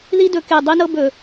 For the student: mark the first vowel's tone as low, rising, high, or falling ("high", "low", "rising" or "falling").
high